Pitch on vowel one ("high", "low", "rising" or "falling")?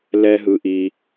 high